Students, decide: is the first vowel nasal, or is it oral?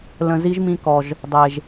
nasal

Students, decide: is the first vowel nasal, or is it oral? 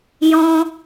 nasal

